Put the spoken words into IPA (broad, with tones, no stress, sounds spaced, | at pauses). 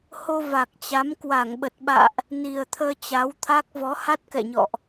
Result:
h o˧ v a˨˩ k̚ t͡ɕ a˨˦ m k w a˧˩ ŋ ɓ ə˨˩ t̚ ɓ a̰ː˧˨ ʔ | n i˨˩ ə̯ t̪ʰ əː˧ t͡ɕ a˨˦ w t̪ʰ a˦˥ k̚ v ɔ˨˦ h a˦˥ t̚ k ɛ̰˧˨ ɲ ɔ̰˧˨ ʔ